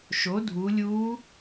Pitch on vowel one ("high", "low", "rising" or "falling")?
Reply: rising